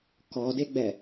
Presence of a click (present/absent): absent